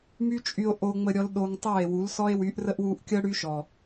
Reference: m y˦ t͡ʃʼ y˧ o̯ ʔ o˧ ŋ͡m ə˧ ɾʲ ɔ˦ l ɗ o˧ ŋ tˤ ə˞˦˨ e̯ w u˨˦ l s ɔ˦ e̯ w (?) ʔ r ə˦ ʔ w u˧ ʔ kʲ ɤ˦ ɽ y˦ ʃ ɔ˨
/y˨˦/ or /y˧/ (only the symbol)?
y˨˦